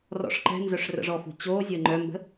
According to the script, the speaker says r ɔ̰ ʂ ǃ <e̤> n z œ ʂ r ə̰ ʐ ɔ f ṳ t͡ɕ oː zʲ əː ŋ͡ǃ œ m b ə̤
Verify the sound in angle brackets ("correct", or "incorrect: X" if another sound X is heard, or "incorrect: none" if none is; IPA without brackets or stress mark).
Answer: incorrect: ɛ̤